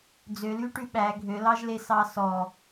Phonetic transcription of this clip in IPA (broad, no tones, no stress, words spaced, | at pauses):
d͡zølyʈʉ ɓæ ɡʱølɑʒlesɑ sɔ